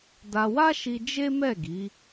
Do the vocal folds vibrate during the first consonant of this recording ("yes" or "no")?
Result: yes